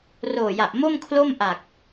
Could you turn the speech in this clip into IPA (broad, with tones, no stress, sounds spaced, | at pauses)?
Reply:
r oː˨˩ j a˨˩ ʔ m o˥˩ m kʰ l o˥˩ m ʔ a˨˩ k̚